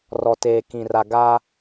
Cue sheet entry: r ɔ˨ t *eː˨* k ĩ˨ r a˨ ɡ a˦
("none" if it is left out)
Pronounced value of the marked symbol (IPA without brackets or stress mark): eː˨